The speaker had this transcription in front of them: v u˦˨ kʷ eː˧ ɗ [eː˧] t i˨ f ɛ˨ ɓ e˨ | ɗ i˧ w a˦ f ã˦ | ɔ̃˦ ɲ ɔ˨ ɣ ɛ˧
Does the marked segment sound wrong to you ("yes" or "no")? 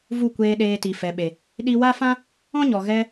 no